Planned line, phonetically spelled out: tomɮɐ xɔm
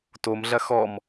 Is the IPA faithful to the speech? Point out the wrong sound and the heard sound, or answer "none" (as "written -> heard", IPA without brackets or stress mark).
none